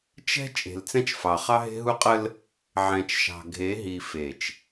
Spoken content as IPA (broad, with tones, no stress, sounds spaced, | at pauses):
t͡ʃ ɛ̤˦ t͡ʃʼ e̤˨ l t͡s ɛ̃˦ t͡ʃ f ɑ˨ χ ɑ˦ ɦ e̤˦ ɦ u˦ qʼ ə˦ l | ʕ ɛ̃˨ t͡ʃ ʃ ɑ̤˨ ɡʱ e˨˦ ɦ i˨ f e˨ t͡ʃ